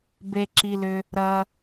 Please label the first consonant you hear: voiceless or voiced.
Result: voiced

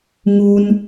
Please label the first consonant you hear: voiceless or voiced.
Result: voiced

